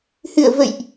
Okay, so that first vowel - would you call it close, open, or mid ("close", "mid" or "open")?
close